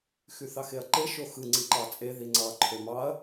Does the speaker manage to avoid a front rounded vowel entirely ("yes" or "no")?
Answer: no